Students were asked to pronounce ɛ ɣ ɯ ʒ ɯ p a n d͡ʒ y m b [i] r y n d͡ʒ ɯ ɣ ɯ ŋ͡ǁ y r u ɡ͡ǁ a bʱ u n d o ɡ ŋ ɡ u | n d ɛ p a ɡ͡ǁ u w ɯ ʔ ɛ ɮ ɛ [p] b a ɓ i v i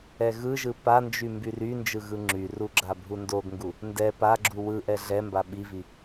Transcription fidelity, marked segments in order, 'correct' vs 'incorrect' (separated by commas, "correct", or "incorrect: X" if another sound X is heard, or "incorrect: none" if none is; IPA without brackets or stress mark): incorrect: y, incorrect: m